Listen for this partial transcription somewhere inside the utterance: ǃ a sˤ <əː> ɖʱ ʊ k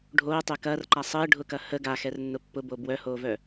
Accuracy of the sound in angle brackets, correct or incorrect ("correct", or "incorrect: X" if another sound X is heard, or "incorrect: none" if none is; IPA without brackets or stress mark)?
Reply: correct